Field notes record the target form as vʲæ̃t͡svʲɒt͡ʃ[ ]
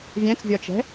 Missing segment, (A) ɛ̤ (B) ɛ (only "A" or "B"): A